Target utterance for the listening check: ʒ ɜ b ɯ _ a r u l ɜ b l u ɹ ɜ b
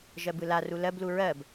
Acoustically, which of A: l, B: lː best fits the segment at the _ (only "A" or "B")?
A